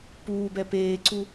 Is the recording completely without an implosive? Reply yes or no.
yes